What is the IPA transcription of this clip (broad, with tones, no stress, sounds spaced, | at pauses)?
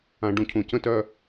ã˨ ɖ ũ˨ cʰ ũ˨ c ə̃˦ t œ˦